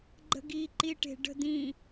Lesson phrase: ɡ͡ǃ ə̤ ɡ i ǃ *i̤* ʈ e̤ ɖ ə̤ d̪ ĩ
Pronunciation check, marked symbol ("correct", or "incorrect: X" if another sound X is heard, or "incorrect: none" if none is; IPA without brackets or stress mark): incorrect: i